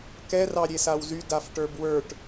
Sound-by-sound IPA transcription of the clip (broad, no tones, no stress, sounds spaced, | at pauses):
k ɛ r ɑ ɾʲ e s a w z y d a f ʈ ə˞ b w ə˞ ʈ